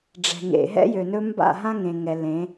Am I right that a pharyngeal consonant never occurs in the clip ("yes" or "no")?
yes